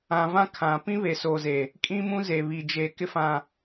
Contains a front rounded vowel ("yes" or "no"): no